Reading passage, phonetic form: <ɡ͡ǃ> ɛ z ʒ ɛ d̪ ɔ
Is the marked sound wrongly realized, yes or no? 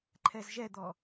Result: yes